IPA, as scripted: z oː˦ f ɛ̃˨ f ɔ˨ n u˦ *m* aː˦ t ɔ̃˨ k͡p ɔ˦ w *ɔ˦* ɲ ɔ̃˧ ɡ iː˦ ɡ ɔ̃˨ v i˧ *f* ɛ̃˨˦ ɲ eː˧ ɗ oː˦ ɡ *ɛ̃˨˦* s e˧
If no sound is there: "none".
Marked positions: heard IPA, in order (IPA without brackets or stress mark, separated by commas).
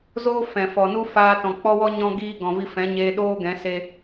f, ɔ˦, f, ɛ̃˨˦